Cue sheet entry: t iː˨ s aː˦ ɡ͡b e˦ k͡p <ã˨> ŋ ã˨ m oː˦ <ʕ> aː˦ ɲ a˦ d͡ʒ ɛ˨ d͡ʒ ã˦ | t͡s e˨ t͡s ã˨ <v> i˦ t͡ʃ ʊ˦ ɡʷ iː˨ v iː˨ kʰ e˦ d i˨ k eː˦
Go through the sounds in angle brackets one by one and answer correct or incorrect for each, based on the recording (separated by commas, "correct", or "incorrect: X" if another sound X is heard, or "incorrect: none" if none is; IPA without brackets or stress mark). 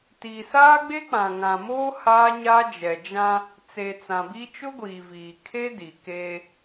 correct, incorrect: h, incorrect: b